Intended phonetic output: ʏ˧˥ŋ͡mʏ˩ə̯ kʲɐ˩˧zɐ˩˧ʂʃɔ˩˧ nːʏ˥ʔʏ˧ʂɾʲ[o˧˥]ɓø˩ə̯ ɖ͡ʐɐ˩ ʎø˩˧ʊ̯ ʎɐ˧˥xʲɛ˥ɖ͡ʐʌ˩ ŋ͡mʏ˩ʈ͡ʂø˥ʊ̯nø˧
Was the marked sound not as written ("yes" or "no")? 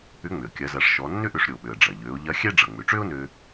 yes